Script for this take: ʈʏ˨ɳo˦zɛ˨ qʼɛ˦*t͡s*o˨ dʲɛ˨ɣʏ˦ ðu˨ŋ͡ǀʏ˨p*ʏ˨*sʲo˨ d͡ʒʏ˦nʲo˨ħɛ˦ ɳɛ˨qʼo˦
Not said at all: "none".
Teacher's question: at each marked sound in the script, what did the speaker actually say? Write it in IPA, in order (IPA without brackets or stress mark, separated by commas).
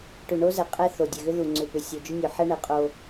θ, ʏ˨